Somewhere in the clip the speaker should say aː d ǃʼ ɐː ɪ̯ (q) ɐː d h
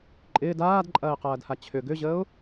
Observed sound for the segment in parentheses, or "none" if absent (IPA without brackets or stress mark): q